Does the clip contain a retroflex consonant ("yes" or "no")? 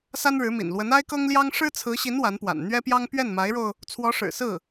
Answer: yes